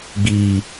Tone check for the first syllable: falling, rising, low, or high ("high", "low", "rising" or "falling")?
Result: low